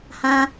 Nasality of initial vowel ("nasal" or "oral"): nasal